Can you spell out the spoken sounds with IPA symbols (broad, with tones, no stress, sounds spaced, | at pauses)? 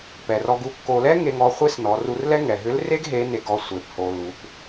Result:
p ɛ˩ r ɔ˧ ɡ u˧˥ kː o˧ l ɛ˥ ŋ e˧ ŋ ɔ˧ χʷ e˥ s n ɔ˩˧ r u˧ r l ɛ˥ ŋ ɛ˩ ɦ ʏ˧˥ l r e˥ ɡ ɦ e˧˥ n e˧ ɡ ɔ˧ sʷ e˩˧ p h o˩ l u˩˧ p